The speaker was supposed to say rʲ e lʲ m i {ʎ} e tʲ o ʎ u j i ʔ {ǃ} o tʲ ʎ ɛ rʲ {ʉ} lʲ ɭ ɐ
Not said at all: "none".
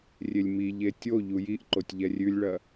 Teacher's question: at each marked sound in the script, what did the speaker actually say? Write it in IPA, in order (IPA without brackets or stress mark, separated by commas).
ʎ, ǃ, ʉ